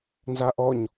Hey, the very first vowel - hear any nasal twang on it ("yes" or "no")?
no